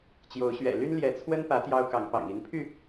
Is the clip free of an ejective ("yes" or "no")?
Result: yes